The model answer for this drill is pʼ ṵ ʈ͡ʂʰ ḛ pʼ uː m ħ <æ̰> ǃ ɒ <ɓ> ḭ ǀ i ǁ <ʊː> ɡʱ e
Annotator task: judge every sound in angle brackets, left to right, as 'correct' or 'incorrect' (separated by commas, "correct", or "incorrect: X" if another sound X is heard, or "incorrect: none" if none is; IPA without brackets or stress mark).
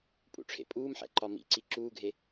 correct, incorrect: m, incorrect: uː